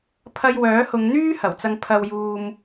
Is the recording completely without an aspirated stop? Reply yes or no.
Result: no